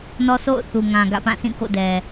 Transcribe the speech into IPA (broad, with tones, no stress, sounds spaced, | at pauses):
n ɔ˦ sʰ o̰˦˨ ʊ̯ θ u˨ ŋ ã˨ ɡ ä̰˦˨ p ã˦˨ s ĩ˦˨ k o̰˦˨ d ɛ˨